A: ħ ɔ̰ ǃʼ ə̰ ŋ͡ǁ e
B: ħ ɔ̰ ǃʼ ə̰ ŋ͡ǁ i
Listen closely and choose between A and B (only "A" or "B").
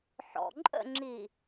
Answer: B